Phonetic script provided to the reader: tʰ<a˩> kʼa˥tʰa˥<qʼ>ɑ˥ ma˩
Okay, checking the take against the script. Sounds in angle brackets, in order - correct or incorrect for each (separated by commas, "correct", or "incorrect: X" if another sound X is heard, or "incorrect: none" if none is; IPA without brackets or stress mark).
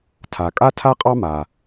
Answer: correct, correct